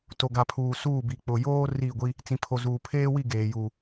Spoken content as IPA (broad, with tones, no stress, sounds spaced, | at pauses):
t o˨ ɡ a˨ pʰ uː˨ s uː˦˨ b i˨ k͡p ʊ˨ j oː˦ r iː˦˨ ɡʷ i˦ | t͡s ĩ˨ pʰ o˨ z uː˨ pʰ eː˦ w i˦˨ ɡ eː˨ j u˨